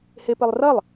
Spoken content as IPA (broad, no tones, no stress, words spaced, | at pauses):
hepɘlˠrɐlˠ